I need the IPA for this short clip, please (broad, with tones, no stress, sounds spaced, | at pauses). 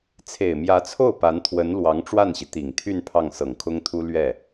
t͡sʰ e˨˩ ɪ̯ m j ä˧˥ t͡sʰ o˥˩ ʊ̯ p a˧˥ n t̪ʰ w ə˧˥ n l w ɑ˧˥ ŋ ʈ͡ʂ w a˥˩ n ɕ i˩ t̪ i˨˩ ŋ t̪ʰ y˥˧ n pʰ ɑ˥˩ ŋ s ɤ˨˩ ŋ kʰ ʊ˥ ŋ t̪ʰ u˥ l ɥ ɛ˥˩